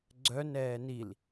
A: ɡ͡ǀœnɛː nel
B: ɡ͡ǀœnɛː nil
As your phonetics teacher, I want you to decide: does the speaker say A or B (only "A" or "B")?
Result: B